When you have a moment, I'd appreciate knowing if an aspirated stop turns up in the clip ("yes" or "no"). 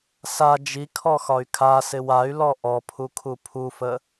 yes